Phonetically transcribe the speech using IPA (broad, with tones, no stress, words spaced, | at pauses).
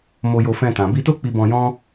mo˧jo˧fɛ̃˧ tã˨bi˧to˦ k͡pi˧bɔ̃˧jɔ̃˦